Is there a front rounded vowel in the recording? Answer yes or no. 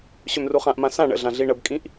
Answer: yes